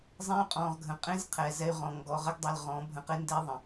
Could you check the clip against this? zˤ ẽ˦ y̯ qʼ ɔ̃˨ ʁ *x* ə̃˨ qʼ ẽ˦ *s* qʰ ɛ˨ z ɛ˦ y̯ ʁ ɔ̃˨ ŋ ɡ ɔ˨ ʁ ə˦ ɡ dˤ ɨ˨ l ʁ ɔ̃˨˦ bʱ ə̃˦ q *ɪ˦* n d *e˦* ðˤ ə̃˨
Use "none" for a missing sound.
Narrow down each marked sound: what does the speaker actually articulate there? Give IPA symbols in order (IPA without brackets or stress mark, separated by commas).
ɡʱ, z, ɪ˦, e˦